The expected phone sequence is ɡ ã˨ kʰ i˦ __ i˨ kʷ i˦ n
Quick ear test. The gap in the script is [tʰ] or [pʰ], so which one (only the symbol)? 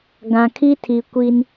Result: tʰ